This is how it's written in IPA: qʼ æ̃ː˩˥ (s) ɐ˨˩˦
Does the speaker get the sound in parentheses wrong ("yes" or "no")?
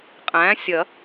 yes